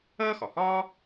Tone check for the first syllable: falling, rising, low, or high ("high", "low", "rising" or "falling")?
high